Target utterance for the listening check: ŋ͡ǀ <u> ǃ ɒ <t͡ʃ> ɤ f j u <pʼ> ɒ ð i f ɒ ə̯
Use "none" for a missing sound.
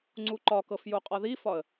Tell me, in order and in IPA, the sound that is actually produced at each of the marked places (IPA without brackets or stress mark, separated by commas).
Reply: u, k, qʼ